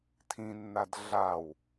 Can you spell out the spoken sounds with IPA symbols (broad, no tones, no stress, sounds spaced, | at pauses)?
tʰ ĩ nː a d ɮ a w